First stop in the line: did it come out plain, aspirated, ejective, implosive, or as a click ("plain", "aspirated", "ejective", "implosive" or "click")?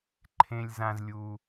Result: click